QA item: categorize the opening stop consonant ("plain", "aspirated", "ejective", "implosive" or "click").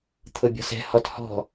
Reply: aspirated